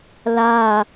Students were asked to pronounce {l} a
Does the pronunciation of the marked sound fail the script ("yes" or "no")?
no